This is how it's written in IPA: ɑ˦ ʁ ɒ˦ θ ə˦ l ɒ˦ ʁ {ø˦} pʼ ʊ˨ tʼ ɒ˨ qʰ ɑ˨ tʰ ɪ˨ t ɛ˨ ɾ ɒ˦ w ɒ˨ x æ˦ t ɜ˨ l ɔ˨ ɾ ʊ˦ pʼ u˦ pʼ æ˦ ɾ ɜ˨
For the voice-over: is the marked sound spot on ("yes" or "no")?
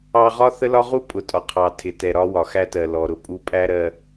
no